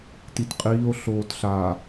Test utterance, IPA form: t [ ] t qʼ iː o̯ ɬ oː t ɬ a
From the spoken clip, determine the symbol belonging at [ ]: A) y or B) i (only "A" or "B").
B